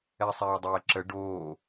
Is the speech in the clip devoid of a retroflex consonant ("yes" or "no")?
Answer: no